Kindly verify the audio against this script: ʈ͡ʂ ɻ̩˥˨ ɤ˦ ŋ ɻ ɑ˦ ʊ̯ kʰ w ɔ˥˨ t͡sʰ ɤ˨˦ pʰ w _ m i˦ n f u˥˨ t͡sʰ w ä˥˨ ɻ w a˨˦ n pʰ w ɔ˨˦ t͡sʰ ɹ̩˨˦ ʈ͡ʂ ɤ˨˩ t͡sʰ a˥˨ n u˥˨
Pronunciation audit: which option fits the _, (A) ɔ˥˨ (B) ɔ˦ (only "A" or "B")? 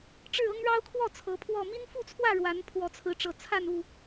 A